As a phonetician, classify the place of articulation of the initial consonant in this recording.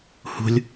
glottal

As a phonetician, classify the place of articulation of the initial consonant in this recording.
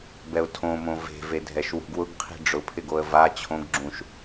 labial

